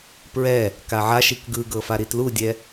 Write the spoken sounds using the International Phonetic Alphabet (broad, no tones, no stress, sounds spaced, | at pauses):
p ɹ ɛ | k a ʕ a ʃ i k ɡ ɯ ɡ ɤ f a ɾ i t l u dʲ ɛ